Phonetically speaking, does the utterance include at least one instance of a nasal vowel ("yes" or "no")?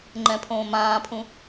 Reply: yes